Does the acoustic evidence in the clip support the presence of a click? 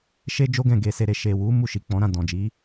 no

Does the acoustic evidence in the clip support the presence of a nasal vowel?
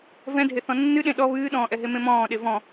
yes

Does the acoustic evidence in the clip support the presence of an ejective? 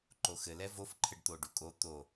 yes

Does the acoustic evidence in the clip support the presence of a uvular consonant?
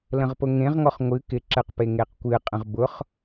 yes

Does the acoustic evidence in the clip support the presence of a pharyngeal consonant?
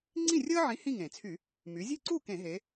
yes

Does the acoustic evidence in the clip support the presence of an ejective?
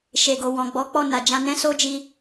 no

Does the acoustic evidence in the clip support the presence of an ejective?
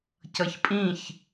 yes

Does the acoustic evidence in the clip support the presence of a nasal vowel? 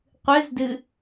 no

